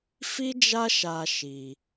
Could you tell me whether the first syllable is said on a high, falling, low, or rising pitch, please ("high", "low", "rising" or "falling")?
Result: high